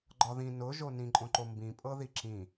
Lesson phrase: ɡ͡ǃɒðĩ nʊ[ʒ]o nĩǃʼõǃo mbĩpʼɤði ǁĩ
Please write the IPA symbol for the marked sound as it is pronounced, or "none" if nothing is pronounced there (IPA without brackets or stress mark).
ʒ